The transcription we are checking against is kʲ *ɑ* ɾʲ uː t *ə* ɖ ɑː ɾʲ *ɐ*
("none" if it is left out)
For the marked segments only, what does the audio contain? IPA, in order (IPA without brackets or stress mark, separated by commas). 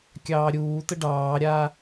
ɑː, ə, a